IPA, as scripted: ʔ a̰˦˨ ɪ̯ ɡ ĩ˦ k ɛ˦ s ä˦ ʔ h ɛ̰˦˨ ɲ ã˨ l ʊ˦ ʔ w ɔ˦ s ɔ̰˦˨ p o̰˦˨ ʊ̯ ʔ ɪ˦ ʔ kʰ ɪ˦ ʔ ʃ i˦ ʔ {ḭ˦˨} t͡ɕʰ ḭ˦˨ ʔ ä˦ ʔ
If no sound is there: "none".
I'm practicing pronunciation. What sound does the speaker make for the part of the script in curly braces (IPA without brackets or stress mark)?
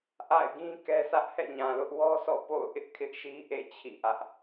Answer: ḛ˦˨